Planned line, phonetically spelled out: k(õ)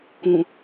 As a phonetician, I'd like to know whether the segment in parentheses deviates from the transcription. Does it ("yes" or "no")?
yes